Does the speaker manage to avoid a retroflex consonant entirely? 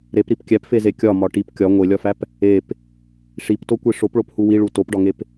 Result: no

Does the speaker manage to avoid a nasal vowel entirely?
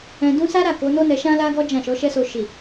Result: no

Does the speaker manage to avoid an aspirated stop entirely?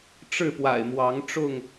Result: yes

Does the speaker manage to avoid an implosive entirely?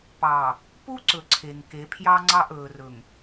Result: yes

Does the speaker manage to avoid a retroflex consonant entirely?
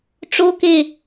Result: no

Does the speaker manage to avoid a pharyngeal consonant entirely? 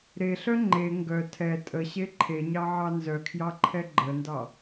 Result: no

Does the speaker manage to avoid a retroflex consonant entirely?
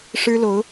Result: no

